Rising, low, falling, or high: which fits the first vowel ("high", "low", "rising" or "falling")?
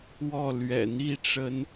falling